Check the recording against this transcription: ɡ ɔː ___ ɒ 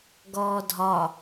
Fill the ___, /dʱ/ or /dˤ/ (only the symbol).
dʱ